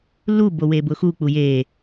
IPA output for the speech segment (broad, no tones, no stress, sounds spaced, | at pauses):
l u b o w e b ʊ x u k͡p u j e